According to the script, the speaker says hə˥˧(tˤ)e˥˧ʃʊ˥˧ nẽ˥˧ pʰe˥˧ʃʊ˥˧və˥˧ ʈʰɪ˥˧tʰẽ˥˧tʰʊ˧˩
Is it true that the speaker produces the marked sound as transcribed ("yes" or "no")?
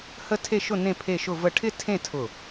no